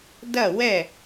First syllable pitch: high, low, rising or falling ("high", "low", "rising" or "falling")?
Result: falling